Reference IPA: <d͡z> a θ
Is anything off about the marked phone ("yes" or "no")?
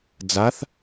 no